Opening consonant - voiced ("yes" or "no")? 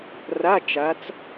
yes